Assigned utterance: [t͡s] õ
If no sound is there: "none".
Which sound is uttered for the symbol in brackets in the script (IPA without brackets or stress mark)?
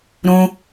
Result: ɾ